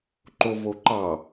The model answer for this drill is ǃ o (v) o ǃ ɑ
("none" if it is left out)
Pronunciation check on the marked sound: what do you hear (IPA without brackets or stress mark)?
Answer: v